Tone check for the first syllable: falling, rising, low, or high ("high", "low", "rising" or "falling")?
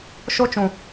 high